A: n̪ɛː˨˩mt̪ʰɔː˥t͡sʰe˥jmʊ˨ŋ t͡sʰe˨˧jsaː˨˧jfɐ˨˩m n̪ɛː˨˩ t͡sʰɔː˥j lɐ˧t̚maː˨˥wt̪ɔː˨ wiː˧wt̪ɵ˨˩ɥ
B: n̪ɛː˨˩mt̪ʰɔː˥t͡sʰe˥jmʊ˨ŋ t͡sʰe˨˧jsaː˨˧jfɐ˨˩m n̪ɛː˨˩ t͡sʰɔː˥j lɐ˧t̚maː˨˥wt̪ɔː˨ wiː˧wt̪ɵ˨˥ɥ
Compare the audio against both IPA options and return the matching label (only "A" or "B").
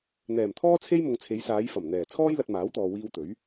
B